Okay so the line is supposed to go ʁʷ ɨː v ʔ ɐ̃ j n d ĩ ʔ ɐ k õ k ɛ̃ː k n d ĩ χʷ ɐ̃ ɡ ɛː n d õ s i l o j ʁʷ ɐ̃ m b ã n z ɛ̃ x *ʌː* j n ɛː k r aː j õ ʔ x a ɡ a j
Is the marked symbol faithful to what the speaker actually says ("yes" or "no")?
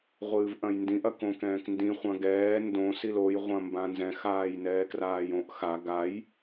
no